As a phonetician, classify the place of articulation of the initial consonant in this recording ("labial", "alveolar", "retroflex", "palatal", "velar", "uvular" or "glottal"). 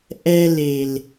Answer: glottal